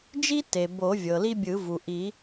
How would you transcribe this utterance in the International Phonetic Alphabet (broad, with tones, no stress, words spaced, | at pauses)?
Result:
d͡ʒi˦te˩ bo˨˩˦vʲɤ˩li˦ bʲɯ˨˩˦vu˩ʔi˨˩˦